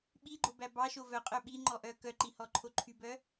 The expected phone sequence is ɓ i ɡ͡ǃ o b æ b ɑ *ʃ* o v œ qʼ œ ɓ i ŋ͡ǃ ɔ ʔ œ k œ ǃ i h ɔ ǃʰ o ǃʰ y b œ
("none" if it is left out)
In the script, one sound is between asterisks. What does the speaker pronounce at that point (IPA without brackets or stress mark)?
ʃ